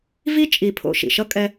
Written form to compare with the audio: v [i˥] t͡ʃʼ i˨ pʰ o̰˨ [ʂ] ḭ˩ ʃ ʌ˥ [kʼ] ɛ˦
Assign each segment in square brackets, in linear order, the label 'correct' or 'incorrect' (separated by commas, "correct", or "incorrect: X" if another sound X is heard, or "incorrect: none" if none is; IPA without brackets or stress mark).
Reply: correct, incorrect: ʃ, correct